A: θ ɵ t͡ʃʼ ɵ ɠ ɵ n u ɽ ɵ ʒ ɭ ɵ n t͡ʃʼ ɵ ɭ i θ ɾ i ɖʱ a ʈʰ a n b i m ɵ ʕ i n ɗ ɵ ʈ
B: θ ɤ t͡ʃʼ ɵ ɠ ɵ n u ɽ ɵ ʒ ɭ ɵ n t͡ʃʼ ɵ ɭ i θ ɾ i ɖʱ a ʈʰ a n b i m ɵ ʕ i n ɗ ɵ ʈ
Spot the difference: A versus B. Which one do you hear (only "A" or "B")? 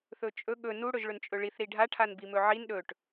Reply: A